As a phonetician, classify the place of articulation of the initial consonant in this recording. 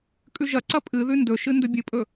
velar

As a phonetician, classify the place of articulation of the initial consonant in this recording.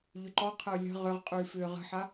palatal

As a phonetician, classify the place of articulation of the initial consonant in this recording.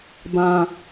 labial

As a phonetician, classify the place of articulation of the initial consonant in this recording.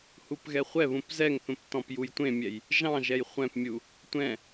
glottal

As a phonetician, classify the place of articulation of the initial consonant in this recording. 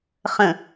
uvular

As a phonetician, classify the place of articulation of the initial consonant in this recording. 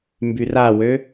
labial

